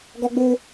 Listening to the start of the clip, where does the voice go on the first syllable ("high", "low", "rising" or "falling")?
high